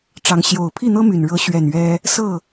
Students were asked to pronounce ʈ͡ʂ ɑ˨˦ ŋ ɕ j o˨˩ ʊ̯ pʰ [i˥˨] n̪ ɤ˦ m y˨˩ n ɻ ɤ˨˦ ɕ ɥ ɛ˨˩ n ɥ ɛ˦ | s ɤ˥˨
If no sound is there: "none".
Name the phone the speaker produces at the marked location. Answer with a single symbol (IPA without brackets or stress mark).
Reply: i˥˨